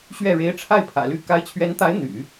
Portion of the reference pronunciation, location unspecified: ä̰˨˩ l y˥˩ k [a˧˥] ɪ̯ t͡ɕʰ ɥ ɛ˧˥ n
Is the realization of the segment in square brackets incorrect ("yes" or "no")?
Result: no